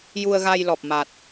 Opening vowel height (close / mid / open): close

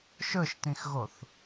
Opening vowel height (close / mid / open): mid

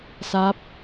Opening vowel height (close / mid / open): open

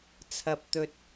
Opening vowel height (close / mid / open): open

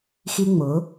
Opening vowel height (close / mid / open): close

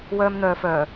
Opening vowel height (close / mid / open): mid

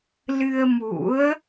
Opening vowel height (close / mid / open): close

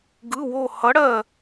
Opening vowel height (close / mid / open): close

